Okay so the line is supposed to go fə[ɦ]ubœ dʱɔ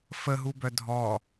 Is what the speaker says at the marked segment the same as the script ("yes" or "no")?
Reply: yes